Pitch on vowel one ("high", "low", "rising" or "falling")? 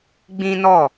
high